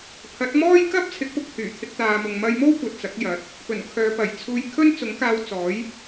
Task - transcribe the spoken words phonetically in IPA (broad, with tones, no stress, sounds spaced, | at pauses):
pʰ ɐ˨˥ t̚ m ɔː˥ j k ɐ˥ p̚ t͡sʰ ɪ˨˥ k̚ p ʊ˧ k̚ h yː˨˩ t̪ʰ ɪ˧ k̚ t̪ aː˨ m ʊ˨ ŋ m ɐ˧ j m o˥ w kʷ ɐ˨ t̚ t͡s ɐ˨˥ k̚ j ɐ˨˥ t̚ | p ɵ˨˩ n kʰ œː˨˧ p ɐ˨˩ j t͡sʰ uː˧ j kʰ ɵ˥ n t͡s ʊ˨˥ ŋ k aː˧ w t͡s ɔː˨˥ j